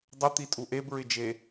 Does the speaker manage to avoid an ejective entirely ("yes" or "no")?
no